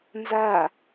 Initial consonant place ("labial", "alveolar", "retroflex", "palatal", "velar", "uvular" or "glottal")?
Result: alveolar